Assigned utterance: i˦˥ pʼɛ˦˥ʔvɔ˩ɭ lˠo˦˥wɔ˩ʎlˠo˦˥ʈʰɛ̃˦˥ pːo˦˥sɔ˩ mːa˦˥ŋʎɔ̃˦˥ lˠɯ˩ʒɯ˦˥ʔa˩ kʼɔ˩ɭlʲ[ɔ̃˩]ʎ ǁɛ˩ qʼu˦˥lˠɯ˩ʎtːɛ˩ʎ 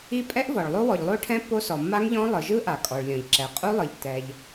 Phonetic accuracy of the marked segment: correct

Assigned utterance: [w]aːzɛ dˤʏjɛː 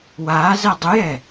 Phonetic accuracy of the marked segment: correct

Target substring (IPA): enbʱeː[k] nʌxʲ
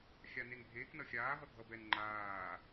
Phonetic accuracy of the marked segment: correct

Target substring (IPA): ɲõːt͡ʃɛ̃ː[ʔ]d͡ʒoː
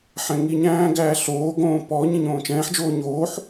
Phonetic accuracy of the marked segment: incorrect: ħ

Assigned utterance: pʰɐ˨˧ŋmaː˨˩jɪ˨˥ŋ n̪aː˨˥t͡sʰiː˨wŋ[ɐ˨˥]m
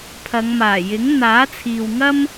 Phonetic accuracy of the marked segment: incorrect: ɐ˥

